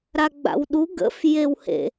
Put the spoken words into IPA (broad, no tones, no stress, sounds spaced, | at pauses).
ɾ a ɡ͡b a̰ w ɗ u ɡ ə̰ f j e w h ḛ